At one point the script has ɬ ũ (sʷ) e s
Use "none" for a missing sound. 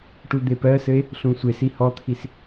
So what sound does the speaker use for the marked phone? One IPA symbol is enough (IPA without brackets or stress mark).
sʷ